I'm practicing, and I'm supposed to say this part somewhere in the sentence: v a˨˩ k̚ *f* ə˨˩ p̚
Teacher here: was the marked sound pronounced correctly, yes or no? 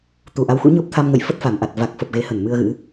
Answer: yes